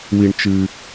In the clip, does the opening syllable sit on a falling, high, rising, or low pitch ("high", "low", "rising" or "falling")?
low